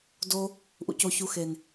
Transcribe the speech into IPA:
do˧ | ʔṵ˨co˨ çu˨xe˨n

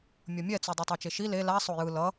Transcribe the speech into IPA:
mʲʌmʲɛt͡su dˤutˤat͡ʃeʃi le la sˤojɯ lʌ

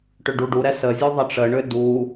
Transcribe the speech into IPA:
ʈʏɖuɖuɾɛ sə zʲuðˤəʈ͡ʂəɳʏ du

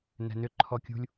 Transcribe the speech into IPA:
nɛ̤nʏ ǃʰɔkʲṳlʲ

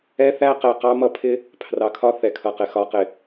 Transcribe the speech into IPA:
ɛ˦θæ˦ qɛ˨qɑ˦mʌ˦ pʰɪ˦ | pʰrɑ˨kʰɒ˦ θɛ˨kʰʌ˨qɪ˨ xɒ˨qɪ˨

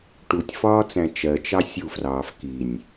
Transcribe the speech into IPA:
ʈutʲfɒːt͡sæ̃ t͡ʃɜt͡ʃɑ sʲufrɑːf kinʲ

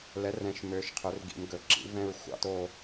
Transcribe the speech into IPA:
lɛ˩˥rɛ̃˩˥ʃmøː˩˧ʃ qʰɵ˩˧rɡḭ˩˧mɡɵ˩˧ǁḭ˩˥ vɛ̃˦˨ɹ xʷɑ̰˦˥to˦˨

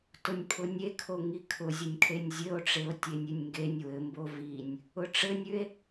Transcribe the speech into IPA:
tʊnʲpʰʊnʲekʰo ŋikʰʊzʲʊnʲkʰenʲ zʲɘo̯ʈ͡ʂeo̯ tʲenʲʉnʲŋɡenʲ wɘmbo vinʲ | ʊʈ͡ʂɘnʲʉe̯

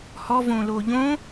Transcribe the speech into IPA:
hɔ võloʎõ

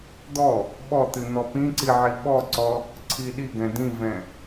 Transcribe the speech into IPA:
d̪ɔ | ɓɔt̪ɨ n̪ɔpĩǀi ʕiɓɔǀɔ | ǀʰiɗiɡɛ̃ dĩvɛ̃

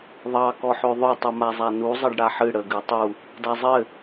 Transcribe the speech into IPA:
ðˤɑ kɔħøðˤøtˤ umazˤanu zˤɘɖɽaħɨ ɽə ɡɨtˤu | dazˤɘ

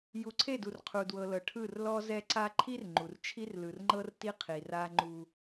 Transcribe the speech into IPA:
ju˨ǀʰe˦˨du˨r qʰu˨dwɤ˨lɤ˨ ʈʰɯ˦˨rlɔ˦zɛ˦ǀa˦ ǃʰi˦r ŋ͡ǃu˨r t͡ʃʰi˦rlɯ˨rŋ͡ǃɤ˦rti˦ qʰi˨ra˦ ŋ͡ǃu˦

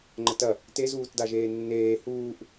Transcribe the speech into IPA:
ŋ͡ǃətɐ | tezuːtda ʒeːnːeː huːʔ

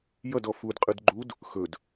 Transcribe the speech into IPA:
jʌdɔ fudqʼɯd ɡ͡ǃud | xɵd

